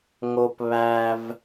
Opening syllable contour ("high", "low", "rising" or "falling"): high